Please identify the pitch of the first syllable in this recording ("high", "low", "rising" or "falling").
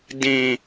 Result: low